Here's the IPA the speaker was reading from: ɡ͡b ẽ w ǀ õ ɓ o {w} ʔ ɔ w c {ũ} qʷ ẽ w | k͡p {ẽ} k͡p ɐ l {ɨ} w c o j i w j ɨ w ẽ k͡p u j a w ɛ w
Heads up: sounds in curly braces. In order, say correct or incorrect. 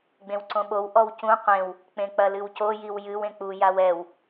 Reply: correct, correct, correct, correct

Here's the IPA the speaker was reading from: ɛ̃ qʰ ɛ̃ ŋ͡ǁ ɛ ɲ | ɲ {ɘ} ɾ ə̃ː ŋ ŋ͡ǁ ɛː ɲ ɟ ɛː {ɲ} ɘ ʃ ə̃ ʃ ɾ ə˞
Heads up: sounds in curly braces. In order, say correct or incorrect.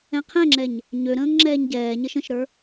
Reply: incorrect, correct

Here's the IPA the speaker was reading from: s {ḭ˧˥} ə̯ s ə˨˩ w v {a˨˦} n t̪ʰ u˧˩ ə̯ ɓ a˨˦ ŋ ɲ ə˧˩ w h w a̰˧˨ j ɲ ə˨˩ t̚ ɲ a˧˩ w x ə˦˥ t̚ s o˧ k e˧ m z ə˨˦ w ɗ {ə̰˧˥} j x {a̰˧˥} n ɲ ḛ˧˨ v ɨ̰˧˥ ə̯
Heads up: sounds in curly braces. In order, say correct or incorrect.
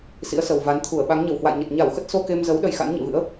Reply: correct, correct, incorrect, correct

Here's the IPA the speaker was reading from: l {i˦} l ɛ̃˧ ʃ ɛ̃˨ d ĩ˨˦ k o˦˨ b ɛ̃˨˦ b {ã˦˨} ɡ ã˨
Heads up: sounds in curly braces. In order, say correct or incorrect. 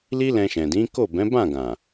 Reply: correct, correct

